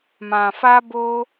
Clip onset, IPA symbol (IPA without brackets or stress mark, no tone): m